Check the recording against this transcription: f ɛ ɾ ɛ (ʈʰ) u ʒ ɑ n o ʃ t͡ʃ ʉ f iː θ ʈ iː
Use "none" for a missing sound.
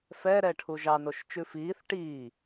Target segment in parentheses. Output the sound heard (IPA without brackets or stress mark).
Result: ʈʰ